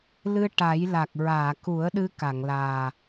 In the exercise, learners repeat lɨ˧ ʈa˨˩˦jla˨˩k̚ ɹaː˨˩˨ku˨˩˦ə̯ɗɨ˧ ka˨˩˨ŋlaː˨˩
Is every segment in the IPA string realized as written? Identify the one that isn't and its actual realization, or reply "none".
none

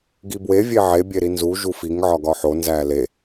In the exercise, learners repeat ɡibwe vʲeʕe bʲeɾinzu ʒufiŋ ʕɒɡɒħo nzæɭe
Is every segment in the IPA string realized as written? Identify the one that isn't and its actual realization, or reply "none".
ɭ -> l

